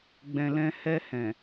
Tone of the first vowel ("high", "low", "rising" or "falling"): low